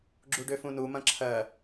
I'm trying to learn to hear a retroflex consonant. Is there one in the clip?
yes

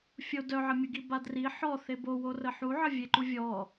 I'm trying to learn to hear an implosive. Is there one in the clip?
no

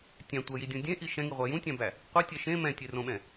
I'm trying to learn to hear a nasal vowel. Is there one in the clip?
yes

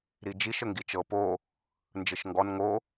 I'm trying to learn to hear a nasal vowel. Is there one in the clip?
no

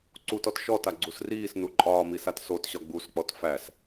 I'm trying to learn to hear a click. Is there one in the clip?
yes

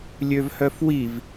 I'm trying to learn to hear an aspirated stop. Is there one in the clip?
no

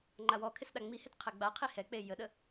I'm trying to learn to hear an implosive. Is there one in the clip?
yes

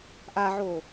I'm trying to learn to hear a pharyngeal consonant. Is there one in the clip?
yes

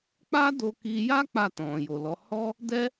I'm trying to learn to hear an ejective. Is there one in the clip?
no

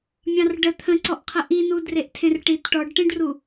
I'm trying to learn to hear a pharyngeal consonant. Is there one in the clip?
no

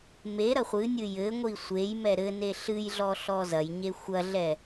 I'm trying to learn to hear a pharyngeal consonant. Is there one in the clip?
no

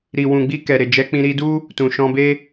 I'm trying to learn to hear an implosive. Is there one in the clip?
no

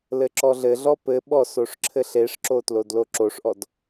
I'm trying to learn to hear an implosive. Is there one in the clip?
yes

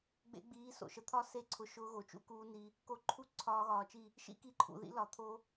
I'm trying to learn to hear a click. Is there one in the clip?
yes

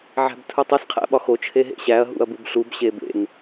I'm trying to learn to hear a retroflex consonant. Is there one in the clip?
no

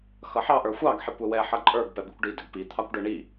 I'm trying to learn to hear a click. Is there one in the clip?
yes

